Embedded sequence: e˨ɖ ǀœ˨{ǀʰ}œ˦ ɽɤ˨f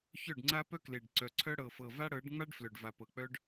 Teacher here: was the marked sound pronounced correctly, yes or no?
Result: yes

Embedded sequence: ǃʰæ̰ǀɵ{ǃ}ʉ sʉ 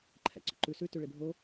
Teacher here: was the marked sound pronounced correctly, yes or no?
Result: yes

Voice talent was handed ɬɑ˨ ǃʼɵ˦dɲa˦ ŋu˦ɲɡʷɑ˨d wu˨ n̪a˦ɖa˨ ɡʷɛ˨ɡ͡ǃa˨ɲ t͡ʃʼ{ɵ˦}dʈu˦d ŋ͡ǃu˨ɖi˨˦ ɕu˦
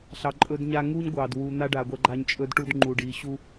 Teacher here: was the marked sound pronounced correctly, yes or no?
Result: yes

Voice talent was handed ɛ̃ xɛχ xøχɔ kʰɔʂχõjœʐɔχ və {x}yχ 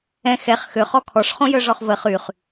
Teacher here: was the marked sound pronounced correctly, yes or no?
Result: no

